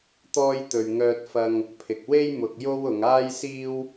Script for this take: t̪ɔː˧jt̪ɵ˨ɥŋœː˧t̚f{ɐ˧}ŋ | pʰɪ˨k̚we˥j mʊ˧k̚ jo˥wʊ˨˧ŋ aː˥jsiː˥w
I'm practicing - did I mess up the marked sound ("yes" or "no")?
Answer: no